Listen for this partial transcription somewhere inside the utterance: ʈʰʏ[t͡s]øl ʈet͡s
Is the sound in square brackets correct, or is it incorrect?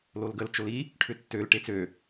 incorrect: tː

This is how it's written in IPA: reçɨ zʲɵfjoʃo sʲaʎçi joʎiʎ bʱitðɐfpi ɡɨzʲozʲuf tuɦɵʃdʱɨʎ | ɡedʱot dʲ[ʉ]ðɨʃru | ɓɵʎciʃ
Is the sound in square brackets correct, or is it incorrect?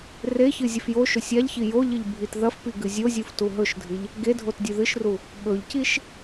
correct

